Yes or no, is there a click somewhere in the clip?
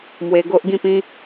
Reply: no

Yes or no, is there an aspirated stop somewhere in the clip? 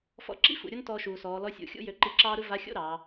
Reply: no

